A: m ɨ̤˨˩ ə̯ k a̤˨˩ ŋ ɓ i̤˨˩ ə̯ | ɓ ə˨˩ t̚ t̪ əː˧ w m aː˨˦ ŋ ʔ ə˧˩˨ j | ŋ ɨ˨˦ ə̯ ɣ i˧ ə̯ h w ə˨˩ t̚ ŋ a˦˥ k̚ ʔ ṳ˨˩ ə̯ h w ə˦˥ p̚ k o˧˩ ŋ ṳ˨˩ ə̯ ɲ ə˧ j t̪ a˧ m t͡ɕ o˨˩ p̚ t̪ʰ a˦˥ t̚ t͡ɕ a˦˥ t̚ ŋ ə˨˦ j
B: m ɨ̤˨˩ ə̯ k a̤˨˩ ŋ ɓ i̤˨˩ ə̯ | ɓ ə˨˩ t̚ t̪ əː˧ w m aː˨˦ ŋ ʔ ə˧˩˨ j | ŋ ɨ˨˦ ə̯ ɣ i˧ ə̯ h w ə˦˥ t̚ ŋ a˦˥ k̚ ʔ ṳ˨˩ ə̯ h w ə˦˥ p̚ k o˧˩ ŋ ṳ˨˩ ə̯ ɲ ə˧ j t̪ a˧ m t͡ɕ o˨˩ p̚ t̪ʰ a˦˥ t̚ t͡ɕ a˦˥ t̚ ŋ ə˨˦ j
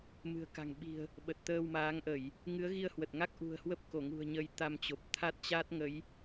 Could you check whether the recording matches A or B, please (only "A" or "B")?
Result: A